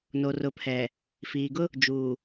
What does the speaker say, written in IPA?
no˨rʊ˨pʰɛ˨ | fiː˨ ɡʊ˦ | d͡ʒuː˨

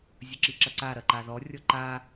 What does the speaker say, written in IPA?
zʲəǁiǁɐǀa ɾɐǃaðɔ rʲɔǃa

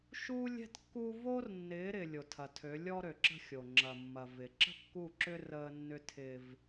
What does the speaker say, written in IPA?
ʃuː˦lʲɛ̤˦tkːu˦ vo˦rnːɪː˨˦ɾɪ˨ lʲo˨tʰɐ˨tʰø˨˦ lʲɔ˦ɾø˨ǁə̤˦xʲo˨ ŋ͡ǁɐ˨mːɐ˨ vɪ˨ ǁə̤˦kːu˦˨ǁʏ˦ rəː˦nːʏ˦ tʰɪː˦v

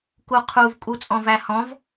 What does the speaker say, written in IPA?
kuqʰuv kʼut͡sʼɔ̃væhɔ̃v

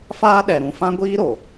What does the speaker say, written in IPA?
faː˦ɗɛ˨ɾũ˨ fã˦ɡʷiː˦ɾo˨

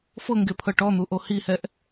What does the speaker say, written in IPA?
fɤŋɡepʰɤ ʈɔn̪uʔo hihɛʔ

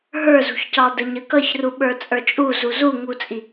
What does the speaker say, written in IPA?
ɦə˞zṳçcɑ dəɲəkʌçru ɓə˞t͡sʼə˞t͡ʃʼu zuzuŋut͡sʼi

